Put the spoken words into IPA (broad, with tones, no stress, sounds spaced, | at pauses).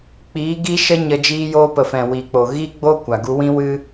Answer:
k͡p iː˨˦ ɡ i˦ ʃ ə˦ ɲ ə˧ d͡ʒ iː˧ j oː˧ p ə˨ f ɛ̃˨ w iː˨ k͡p o˨ ɣ iː˦ ɡ͡b oː˦ kʷ a˨ ɡ u˧ w ĩ˦ w ɨ˦